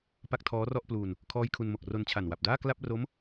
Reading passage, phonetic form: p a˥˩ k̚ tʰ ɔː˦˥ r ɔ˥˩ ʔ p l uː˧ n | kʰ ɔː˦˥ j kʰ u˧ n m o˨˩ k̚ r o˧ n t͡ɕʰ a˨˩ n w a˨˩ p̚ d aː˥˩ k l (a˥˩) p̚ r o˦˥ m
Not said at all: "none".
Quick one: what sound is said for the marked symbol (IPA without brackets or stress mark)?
a˥˩